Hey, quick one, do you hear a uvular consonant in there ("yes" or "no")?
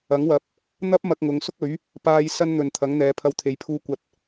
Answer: no